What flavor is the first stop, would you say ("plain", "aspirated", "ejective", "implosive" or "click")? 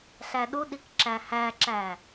implosive